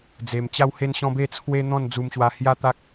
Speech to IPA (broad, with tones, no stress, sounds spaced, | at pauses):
d͡z e˧ m t͡ɕ a˦ w h e˦ n ɕ ɔ̃˦ b e˥˧ t͡sʰ w e˦ n̪ ɔ̃˥˧ n d͡z u˦ m ɕ w a˦ h j a˦ t̪ a˦ k̚